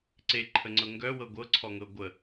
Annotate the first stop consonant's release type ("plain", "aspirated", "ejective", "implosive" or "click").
click